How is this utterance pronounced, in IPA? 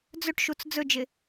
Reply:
d͡z ɵ ʈ ʃ u t͡s d͡z ɵ d͡ʒ ɪ

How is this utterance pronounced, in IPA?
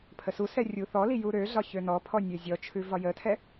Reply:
pʰ ə s u s ɛ rʲ u θ ɔ l i j u ɾ ø ɮ ɒ ç ø n ɔ pʰ ɔ nʲ ø zʲ ɔ t͡ʃʰ ʉ v ɒ j ə tʰ ɛ

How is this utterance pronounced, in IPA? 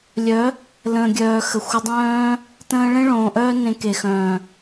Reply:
lʲ œ˨˦ | l ə̃ː˨ ɡʲ œː˨ x ə˨ xʷ ə˧ dˤ œ̃ː˦ | t ə̃ː˧ ɭ ẽ˦ ɭ õː˨ ʔ œː˦ n ẽ˧ k e˨ x œ̃ː˨

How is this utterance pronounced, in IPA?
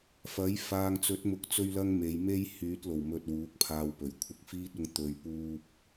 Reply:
f ɐ˨˥ j f aː˨ ŋ t͡s ɵ˨˥ t̚ m ʊ˨ k̚ t͡s ɵ˧ ɥ l ɐ˥ ŋ m e˨˧ j m e˥ j h yː˨˥ t̚ l o˨˩ w m ɵ˨ t̚ w uː˨˥ k̚ pʰ aː˧ w p ɵ˨˩ ɥ kʷʰ ɪ˧ k̚ f iː˥ t̚ ʊ˧ ŋ t̪ ɵ˨ ɥ p uː˧ p̚

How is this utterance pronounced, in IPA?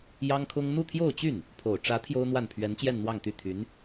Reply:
j ɑ˥ ŋ kʰ ʊ˥ ŋ n̪ u˥˧ t̪ʰ j o˥˧ ʊ̯ t͡ɕ y˥˩ n | pʰ o˨˩ ʊ̯ ʈ͡ʂ ä˧˥ t̪ʰ j o˥ ʊ̯ n̪ w a˥˩ n pʰ ɥ ɛ˧˥ n t͡ɕ j ɛ˥˧ n n̪ w ɑ˥˧ ŋ t̪ y˥˩ t̪ʰ y˧˥ n

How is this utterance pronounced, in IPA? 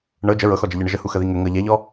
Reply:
ɳ ɤ d͡ʒ ə ɹ ɤ x ɔ d͡ʒ ə ʎ ə ɳ ə ʒ ə h u x ə ð i ŋ ə ŋ ɤ ʎ ɛ ʎ ɔ

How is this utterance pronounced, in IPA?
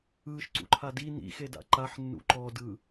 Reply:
ɯː ʃ ǀ ṵ ǃʰ a d i n ḭ x e d a̰ ǃ a ħ nː ṵ ǃ ɔ d ɯ

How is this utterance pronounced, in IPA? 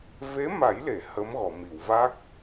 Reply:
v e˧˥ m a˨˩˦ j l e˨˩˨ h ə˧˥ m ɣ ɔ˨˩˨ m i˨˩˨ w v a˦˥ k̚

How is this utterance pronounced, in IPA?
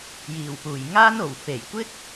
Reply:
j iː˨˩ w p uː˨˩ j ŋ aː˥ n o˨˩ w f e˨˩ j kʷ ɪ˥ k̚

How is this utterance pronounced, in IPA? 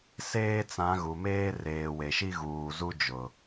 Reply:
s eː˦ t͡s ã˨˦ ɣ u˨ m eː˦ r eː˨ w e˨ ʃ i˦ ɣ uː˨ z u˦ d͡ʒ ʊ˨

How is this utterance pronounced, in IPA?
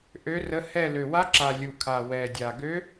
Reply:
ʔ ø˧˥ r ə˧˥ h ɛ˦˨ l ø˨˩ w a˧˥ ǁ a˨˩ lʲ u˨˩ kʰ a˨˩ w ɛ˨˩ dʲ a˨˩ ɡ ø˧˥

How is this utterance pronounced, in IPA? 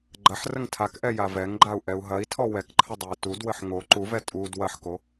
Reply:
ɡ͡ǃ ɐ ħ r ə ŋ tʰ a k ʔ ɛ j a v ɛ ŋ ɡ͡ǃ a u̯ ʔ ɛ u̯ ɦ ɐ i̯ tʰ ɔ w ɛ k ǃʰ ə dˤ ɛ i̯ t u d w ə ħ ŋ o ǃ u v ɛ tʼ u d w ɐ ħ k o

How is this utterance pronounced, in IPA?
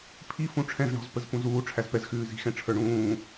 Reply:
pʰ i f ũ ʈ͡ʂʰ ɛ̃ z ɳ ɔ̤ z p ə z p ũ z uː ʈ͡ʂʰ æ z p ɛ z x ʉː z i̤ x ɛ̃ ʈ͡ʂʰ ə˞ ɳ ũː

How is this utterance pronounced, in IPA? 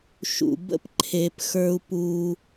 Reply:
ʃ ṵ˨ b ə̰˦ p ǃʰ e˨ p x ə˞˦ u̯ p u˦

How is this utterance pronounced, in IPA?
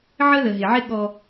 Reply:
ʕ ə˦ ð ə˨ ɦ ɪ˨ ʕ ɪ˦ ɠ ɔ˦

